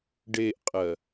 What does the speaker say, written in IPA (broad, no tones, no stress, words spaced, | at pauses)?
ɖeʔqʼɜ